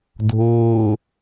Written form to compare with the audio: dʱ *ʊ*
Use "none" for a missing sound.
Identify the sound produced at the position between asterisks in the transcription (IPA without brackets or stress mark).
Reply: ʊː